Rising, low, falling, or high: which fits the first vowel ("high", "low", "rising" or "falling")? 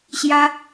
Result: high